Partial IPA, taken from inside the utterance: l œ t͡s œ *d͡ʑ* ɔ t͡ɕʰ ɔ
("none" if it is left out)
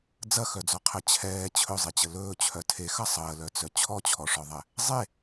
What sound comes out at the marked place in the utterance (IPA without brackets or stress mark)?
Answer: t͡ɕʰ